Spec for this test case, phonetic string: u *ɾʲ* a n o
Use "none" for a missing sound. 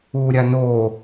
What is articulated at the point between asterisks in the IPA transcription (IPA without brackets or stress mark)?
ɾʲ